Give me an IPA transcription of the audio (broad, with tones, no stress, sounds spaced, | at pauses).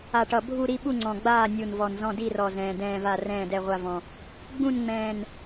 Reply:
a˨˩ ʈ ʌ˨˩ bʱ u˦˨ ɾ i˦˨ ɓ u˦˨ ŋ͡ǀ ɔ̃˨˩ ɡ͡b aː˦˨ nʲ u˨˩ n v ɔ˨˩ n z ɔ̃˦˨ d i˦˨ r ɔ˨˩ z ɛ̃ː˨˩ d ɛ̃ː˦˨ v a˦˨ r ɛ̃ː˦˨ d ɛ˦˨ ʁʷ a˦˨ v ɔ̃˨˩ | ɡ͡b ũ˦˨ n ŋ͡m ɛ̃ː˨˩ n